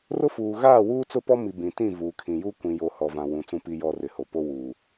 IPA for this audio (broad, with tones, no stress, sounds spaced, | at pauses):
r ʊ˦ f uː˨ ɣ aː˦˨ w uː˦ t͡s ʊ˦ p ɔ˦ m i˨ b ĩ˨ t ĩ˦˨ v uː˨ kʰ ĩ˨ j u˦ kʷ ĩ˨ j o˨ h ɔ˨ v ã˨ w ũ˨ t͡s ũ˨ p i˨ j ɔ˨ r ɪ˨ h o˨ p o˦ w u˨